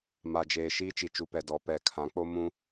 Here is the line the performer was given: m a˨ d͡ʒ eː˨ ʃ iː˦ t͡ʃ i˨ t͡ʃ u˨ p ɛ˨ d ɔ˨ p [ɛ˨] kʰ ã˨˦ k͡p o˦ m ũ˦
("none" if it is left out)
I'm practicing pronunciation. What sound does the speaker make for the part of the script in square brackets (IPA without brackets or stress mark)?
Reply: ɛ˨